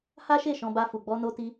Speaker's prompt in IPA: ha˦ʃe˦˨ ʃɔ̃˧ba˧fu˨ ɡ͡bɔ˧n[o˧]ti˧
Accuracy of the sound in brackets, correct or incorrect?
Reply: correct